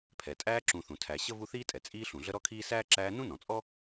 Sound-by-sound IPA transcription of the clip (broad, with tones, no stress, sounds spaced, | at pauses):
pʰ ɛ˩ tʼ æː˦ ǁ ũ˨ θ ũ˩ tʰ æ˨ ɕ ə˥ v u˦ θ iː˥ tʼ ɛ˩ t͡sʼ iː˦ ɬ ũ˩ ɮ ə˥ ɾ ɔ˥ kʰ iː˥ s æː˥ ǁ æː˦ n ũ˥ n ɔ̃˩ t͡sʼ ɔ˥